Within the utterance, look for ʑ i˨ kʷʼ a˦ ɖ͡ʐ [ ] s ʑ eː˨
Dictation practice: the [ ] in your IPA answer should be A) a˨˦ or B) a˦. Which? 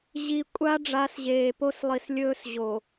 A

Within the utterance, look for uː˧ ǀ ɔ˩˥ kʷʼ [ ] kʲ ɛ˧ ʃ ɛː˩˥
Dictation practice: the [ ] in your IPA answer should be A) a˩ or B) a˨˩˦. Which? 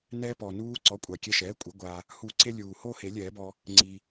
A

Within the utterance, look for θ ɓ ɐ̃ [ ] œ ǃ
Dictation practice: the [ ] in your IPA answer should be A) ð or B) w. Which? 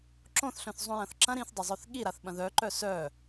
A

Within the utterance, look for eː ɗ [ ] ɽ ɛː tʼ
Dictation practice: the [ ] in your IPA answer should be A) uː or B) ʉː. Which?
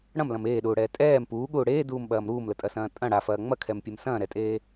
A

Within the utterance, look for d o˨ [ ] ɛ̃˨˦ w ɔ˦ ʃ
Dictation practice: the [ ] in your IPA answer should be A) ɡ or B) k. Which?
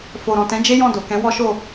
B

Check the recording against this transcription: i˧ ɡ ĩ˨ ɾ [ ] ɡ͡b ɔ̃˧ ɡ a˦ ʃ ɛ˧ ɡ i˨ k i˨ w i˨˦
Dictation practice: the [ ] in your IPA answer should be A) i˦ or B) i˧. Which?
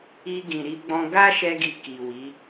B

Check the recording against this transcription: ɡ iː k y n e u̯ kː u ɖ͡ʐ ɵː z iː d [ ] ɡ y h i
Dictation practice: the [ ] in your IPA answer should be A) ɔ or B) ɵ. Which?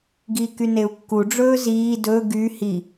B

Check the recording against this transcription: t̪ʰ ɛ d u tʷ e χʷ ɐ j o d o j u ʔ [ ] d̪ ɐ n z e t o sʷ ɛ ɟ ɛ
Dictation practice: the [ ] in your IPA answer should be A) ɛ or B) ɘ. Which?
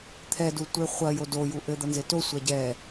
B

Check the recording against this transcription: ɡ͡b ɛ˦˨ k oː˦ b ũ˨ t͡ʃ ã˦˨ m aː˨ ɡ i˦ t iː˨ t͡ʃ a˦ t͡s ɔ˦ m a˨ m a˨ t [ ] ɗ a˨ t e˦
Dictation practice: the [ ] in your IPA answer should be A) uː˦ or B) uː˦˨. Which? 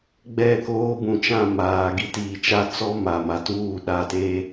B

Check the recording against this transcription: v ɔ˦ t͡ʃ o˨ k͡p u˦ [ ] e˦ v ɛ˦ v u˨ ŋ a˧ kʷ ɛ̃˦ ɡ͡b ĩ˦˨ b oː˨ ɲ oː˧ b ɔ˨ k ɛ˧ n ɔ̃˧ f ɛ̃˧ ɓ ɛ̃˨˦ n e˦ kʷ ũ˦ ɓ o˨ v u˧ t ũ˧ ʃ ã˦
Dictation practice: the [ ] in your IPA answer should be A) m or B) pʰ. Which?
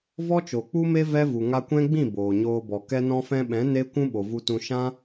A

